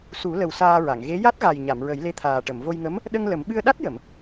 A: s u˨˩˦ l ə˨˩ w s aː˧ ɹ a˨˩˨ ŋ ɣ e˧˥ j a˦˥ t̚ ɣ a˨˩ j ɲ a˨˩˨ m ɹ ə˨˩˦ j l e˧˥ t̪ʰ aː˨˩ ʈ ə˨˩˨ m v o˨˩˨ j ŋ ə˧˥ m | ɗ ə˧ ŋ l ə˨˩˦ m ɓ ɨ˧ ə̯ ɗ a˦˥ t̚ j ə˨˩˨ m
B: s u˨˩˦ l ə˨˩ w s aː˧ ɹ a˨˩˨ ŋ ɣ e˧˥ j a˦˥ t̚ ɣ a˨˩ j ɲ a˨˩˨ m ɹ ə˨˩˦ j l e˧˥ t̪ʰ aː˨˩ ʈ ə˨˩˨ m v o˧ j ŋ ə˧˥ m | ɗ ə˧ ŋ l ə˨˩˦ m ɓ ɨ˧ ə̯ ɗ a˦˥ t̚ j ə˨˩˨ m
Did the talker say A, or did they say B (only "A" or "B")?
B